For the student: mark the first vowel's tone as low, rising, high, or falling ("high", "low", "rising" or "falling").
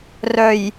low